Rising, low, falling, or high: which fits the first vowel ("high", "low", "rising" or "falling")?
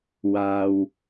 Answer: low